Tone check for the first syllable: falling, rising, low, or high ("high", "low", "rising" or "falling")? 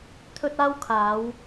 high